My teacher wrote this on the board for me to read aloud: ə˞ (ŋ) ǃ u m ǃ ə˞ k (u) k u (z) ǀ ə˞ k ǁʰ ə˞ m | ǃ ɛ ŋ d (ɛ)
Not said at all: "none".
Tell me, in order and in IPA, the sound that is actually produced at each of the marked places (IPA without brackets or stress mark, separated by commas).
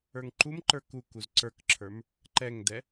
ŋ, u, z, ɛ